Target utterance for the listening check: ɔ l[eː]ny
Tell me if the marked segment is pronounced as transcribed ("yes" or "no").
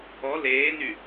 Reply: yes